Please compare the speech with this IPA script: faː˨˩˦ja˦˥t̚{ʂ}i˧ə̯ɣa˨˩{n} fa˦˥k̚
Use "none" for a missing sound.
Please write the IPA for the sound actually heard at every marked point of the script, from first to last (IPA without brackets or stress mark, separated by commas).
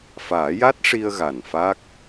ʂ, n